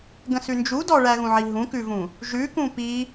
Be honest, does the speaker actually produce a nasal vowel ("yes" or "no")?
yes